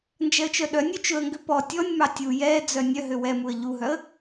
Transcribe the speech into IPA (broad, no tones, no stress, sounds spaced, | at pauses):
n d͡ʒ ɛ ə̯ t͡ʃ œ ɗ œ nʲ ø t͡ʃ ɵ ə̯ ŋ ɡ ø p ɔ tʲ ɔ nʲ m ɑ tʲ u j ɛ d͡z œ nʲ œ ɦ ø w ɛ m u ə̯ ʎ u ɦ œ ə̯